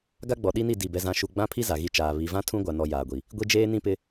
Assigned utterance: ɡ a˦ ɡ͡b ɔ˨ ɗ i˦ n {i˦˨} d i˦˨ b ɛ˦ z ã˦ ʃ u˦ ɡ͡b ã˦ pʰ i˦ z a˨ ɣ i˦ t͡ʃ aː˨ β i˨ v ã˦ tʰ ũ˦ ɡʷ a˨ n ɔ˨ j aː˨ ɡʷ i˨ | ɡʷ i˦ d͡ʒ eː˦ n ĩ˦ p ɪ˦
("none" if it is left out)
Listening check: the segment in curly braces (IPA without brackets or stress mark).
i˦˨